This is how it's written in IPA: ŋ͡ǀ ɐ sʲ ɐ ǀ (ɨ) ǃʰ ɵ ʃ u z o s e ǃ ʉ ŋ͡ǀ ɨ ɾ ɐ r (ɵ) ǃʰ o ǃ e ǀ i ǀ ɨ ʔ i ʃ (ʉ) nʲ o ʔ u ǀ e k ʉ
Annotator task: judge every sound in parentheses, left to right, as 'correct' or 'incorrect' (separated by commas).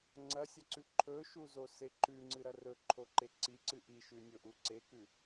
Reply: incorrect, correct, correct